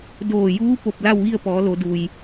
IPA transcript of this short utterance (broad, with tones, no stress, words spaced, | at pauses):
doː˧˩juː˧˥ po˧˩p̚la˥˨wʋi˥˨ə̯pɔː˩˧ lo˩˧du˩j